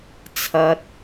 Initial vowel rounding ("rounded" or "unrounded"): unrounded